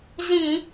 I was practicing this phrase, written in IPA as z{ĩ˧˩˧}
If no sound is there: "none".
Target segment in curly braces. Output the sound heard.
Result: ĩ˧˩˧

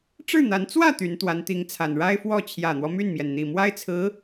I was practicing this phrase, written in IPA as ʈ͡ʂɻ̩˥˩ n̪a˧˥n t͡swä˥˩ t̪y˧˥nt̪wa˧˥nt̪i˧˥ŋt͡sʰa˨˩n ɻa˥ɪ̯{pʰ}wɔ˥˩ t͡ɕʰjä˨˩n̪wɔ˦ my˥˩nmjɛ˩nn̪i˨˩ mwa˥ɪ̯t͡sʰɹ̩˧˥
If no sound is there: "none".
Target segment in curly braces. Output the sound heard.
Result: f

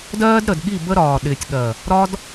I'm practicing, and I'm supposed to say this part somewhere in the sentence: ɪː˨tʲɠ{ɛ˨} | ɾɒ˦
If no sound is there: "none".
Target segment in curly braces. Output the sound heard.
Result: ɜ˨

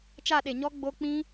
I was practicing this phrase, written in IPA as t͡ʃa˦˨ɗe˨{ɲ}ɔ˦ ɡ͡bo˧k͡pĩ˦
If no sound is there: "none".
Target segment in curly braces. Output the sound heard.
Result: ɲ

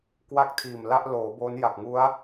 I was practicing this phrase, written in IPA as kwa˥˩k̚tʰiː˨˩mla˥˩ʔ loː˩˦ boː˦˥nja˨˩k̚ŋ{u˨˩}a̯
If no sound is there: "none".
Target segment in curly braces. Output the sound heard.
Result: u˦˥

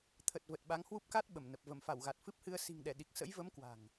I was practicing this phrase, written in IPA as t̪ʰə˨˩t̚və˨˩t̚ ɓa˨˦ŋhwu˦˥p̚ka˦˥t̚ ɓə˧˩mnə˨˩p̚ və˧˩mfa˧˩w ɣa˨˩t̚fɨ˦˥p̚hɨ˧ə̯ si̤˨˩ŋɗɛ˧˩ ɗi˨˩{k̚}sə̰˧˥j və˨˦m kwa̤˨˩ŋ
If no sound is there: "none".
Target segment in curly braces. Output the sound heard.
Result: k̚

